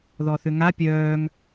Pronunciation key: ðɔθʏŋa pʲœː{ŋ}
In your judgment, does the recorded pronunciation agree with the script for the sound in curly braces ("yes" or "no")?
yes